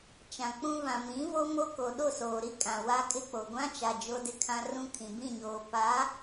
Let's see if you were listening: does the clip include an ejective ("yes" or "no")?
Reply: yes